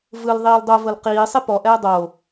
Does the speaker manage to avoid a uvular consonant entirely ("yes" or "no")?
no